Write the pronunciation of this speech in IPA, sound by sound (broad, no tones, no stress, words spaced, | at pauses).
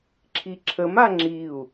ǁʰiǁʰəma ŋ͡ǁiu̯